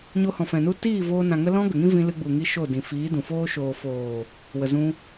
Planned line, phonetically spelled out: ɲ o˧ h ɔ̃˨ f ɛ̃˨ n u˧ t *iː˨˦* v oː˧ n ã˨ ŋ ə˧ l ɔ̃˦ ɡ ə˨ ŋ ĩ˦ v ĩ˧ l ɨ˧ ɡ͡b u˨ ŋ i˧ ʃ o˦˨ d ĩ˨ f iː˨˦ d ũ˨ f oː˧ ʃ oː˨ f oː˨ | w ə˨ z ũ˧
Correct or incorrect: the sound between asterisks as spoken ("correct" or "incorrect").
incorrect